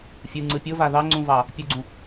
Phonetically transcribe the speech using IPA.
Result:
fʲɯŋ͡ǀɯ pʲʊva ðɑŋ͡ǀũvɑ | pʲuɡ͡ǀũ

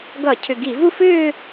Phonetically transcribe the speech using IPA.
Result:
ɡʌ˧˩˧cʰʏ˨˩ɡi˧˩˧vu˥˧f ʏː˥˧

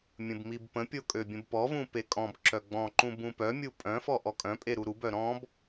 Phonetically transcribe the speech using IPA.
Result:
mʲə̃bmibpə̃pʲo kʼøbʲə̃bpɔvũ pekʼɔ̃bǁœ ɡ͡bɔ̃ǃũ bũpœmʲu pʼœ̃fɔ ʔɔkʼœ̃pʼe ɾuɾubœ ɾɔ̃b

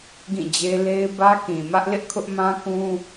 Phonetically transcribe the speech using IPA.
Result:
ɡĩ˦˨d͡ʑe˦ le˦ɪ̯ bä˦kĩ˨ mä˦ʔlɪ˦ʔkʰʊ˦ʔ mã˦kũ˦

